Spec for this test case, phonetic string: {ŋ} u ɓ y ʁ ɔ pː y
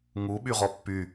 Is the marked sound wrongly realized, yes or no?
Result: no